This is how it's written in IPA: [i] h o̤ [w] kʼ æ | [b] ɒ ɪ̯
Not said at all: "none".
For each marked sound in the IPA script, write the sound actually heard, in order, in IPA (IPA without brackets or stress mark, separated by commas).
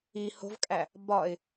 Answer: i, v, b